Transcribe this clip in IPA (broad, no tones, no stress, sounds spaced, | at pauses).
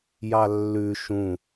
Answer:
j ɑ lː ʉ ʃ ũ